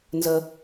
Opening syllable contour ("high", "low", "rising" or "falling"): high